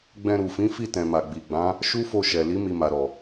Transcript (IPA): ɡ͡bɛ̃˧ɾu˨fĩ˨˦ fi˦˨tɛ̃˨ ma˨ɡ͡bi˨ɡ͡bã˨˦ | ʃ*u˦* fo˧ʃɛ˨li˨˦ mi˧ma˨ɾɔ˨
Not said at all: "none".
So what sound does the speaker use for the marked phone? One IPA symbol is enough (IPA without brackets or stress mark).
u˦